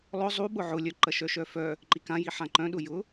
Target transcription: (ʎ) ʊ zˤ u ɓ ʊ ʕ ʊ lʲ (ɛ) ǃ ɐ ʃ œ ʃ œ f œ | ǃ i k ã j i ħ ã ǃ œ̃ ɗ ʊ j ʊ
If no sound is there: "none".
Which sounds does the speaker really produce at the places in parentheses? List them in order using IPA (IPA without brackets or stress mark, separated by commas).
lˠ, œ